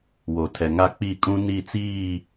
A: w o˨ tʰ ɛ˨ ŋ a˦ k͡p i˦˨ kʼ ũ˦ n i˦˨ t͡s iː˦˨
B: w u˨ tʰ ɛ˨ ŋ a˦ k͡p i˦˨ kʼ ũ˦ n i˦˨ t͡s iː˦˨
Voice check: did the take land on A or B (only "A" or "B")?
A